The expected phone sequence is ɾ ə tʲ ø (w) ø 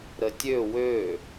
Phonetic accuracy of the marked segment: correct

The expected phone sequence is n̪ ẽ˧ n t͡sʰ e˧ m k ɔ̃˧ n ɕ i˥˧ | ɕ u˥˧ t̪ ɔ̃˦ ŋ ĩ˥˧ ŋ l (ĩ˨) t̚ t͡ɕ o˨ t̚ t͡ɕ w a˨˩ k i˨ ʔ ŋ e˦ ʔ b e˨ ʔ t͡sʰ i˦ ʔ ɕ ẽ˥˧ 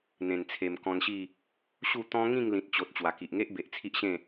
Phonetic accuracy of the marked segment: correct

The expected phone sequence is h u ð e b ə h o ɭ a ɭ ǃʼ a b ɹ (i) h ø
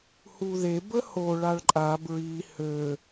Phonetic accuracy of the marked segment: correct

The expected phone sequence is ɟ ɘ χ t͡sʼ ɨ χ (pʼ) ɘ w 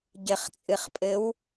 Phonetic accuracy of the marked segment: correct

